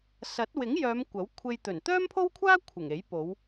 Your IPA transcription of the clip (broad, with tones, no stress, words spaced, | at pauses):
sɐ˨˥t̚wɪ˨˥ŋjœː˨˧m kʷɐ˨˥wkʷʰe˧j t̪ɵ˨˩n t̪œː˥mpʰo˥wkʷʰaː˥ kʷʰɪ˨˩ŋe˨˥j po˨˧w